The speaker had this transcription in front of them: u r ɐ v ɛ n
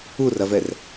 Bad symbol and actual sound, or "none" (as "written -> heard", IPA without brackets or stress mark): n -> r